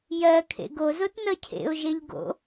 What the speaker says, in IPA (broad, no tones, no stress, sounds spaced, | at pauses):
j ɜ kʰ ḛ ɡ o z o t n ʌ cʰ ḛ ʊ̯ ʒ e ʎ ɡ o̰